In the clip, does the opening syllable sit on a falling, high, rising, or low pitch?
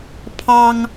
high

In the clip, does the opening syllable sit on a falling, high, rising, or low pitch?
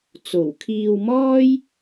low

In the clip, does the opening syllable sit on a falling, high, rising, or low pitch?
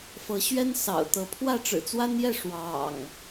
rising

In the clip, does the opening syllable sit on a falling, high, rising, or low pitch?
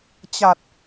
low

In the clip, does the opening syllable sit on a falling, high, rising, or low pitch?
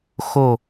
low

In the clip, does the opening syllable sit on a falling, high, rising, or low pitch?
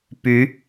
rising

